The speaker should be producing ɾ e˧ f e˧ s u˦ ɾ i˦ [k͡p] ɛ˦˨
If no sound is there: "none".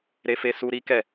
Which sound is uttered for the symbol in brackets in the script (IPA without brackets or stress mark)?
k